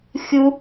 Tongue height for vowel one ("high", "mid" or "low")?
high